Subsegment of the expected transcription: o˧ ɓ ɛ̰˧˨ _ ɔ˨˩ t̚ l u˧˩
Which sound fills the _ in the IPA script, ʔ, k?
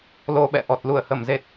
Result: ʔ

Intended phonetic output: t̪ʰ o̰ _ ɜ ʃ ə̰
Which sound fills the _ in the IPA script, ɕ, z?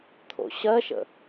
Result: ɕ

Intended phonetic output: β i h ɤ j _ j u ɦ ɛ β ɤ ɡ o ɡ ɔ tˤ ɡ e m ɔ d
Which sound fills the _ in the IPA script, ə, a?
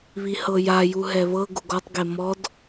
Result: a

